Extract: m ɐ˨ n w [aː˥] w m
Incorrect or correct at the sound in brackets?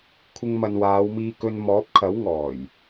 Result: incorrect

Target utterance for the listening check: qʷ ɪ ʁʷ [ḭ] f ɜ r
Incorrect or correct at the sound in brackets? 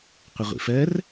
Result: correct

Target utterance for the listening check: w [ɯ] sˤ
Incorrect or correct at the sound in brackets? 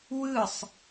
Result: correct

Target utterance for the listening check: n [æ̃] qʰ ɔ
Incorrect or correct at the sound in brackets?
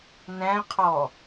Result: correct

